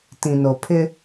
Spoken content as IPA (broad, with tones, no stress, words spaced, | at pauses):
tĩ˨no˨ pʰɪ˦